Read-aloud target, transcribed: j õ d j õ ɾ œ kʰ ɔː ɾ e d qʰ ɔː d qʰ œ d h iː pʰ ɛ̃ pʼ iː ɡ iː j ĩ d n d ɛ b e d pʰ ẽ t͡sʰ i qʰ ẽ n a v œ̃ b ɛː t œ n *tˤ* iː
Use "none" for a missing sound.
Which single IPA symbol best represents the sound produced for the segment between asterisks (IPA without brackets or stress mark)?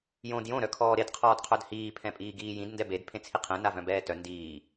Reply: d